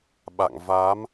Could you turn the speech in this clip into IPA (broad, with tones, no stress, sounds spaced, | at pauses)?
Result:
ɓ a̰˧˨ ŋ v a˨˦ m